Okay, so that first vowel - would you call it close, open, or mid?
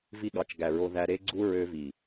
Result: close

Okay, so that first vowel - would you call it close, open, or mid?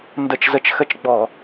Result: mid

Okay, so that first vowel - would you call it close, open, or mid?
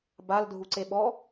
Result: open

